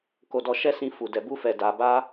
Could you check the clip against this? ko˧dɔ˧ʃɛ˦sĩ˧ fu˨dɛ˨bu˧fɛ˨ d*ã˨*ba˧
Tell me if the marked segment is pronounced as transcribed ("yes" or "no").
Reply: no